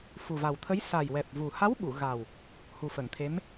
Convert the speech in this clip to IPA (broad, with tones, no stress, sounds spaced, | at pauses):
f u˨˩ v a˨˩ w t̪ʰ ə˧˥ j s a˨˩ j w ɛ˨˩ p̚ v u˨˩ h a˧˥ w ɓ u˨˩˨ ɣ a˨˩ w | h u˨˩ f ə˨˩˨ ŋ t̪ʰ e˧˥ m